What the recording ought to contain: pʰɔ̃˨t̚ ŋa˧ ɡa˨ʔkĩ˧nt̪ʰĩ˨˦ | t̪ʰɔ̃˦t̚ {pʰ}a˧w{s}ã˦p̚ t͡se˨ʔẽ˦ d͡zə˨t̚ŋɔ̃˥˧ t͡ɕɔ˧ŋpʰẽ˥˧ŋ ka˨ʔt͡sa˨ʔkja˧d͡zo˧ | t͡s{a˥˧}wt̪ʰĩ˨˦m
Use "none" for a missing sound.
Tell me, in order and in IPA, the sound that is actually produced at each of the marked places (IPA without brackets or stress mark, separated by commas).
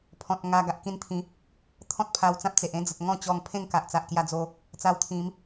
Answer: pʰ, t͡s, a˧